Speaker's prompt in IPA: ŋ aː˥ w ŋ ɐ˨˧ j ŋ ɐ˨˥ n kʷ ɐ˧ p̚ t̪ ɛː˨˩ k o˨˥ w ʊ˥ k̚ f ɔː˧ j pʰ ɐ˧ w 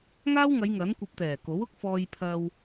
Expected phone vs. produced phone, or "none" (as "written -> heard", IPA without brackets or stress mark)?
none